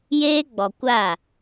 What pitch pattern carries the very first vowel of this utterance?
high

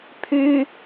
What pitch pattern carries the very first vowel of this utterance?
high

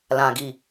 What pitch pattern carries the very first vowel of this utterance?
low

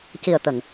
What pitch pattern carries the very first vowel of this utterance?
low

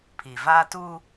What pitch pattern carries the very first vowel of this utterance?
low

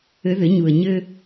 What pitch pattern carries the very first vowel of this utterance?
rising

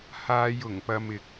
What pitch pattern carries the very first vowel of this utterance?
low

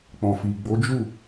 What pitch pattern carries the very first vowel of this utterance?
low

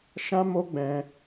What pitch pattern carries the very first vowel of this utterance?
high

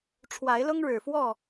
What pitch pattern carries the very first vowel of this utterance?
rising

